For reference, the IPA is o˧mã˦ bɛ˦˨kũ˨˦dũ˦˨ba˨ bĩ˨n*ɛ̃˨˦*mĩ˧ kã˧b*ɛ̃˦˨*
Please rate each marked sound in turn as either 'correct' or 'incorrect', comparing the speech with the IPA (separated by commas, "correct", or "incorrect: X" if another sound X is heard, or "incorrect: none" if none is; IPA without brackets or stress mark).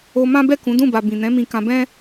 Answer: correct, incorrect: ɛ̃˦